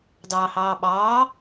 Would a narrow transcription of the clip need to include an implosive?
yes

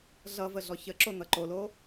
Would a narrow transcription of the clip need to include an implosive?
no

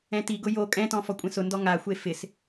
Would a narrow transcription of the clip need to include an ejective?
yes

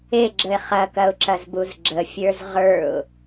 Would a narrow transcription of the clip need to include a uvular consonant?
yes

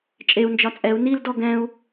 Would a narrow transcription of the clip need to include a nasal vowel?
yes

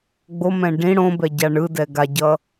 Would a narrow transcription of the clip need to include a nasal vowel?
yes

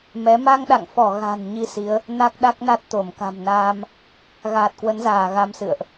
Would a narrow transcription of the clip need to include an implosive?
yes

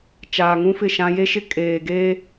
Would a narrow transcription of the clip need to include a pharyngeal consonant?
no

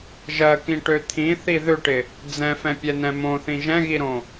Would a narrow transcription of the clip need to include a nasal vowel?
yes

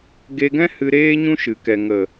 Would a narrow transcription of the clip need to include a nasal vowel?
yes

